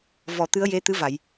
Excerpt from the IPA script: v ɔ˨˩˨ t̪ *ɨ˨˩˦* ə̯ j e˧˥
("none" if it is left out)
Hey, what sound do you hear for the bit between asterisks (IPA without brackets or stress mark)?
ɨ˧˥